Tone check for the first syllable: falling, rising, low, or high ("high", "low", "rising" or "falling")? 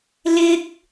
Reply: high